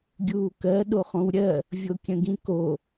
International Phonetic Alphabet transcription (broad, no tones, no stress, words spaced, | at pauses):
ɡʲuːkɜ ɗoχõwɾʲɜ | vʲokʲə̃ɡĩko